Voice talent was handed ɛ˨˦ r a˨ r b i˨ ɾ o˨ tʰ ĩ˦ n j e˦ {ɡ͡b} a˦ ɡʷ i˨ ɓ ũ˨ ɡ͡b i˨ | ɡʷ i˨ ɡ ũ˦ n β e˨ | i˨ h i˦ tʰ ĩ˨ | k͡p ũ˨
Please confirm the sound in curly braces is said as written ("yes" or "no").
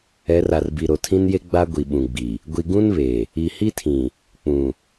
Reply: yes